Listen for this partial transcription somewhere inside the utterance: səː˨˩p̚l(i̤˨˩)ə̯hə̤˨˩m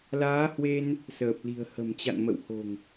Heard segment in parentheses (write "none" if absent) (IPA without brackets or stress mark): i̤˨˩